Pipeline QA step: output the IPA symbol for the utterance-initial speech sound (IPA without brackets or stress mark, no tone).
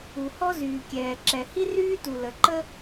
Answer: u